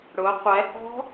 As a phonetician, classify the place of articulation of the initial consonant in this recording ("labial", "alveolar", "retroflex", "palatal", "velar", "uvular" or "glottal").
retroflex